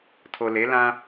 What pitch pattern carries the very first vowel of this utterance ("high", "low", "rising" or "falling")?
low